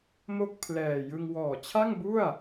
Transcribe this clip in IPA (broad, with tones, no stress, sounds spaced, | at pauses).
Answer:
m o˥˩ k̚ pʰ l ɛː˨˩ j ɯ˧ ŋ w ɔː˨˩ t͡ɕʰ a˥˩ ŋ b u˥˩ a̯